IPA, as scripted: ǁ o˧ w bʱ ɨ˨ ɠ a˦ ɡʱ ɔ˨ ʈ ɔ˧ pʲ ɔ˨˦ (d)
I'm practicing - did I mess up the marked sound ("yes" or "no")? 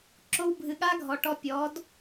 no